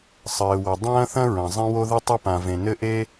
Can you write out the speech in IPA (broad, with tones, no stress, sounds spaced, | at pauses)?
sˤ ɘː˩ w ɐ˩ dˤ ɐ̃ː˥ θ ɐ̃˥ ɹ ɐ̃˩ zˤ ẽ˥ w o˥ ð ɨ˥ tˤ ɨ˥ p ã˩ v ẽ˩ n ɘ˥ ʔ e˥